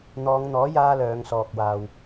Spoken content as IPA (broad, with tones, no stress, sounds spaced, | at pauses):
n̪ ɔː˨˧ ŋ n̪ ɔː˨˥ j aː˥ l œː˨˧ ŋ s ɔː˨ k̚ w aː˨ w